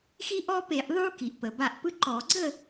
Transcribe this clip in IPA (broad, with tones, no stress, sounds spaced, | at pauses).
x i˦ ʔ ɔ˦ p e˧˩˧ ʔ ðˤ u˦ k i˩ ʔ p ə˩ b a˧˩ ʔ p ɯ˦ ǃ ɔ˧˩˧ ɡ͡ǀ ə˥˨